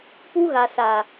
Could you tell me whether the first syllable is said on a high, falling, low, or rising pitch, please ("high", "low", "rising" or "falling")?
high